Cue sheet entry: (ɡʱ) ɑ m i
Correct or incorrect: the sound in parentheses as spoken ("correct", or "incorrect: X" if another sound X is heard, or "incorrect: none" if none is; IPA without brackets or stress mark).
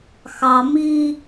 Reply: incorrect: x